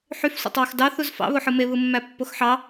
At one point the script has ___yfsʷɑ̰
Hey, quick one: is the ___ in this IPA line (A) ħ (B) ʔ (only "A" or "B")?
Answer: A